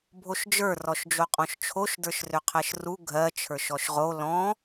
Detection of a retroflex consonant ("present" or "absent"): absent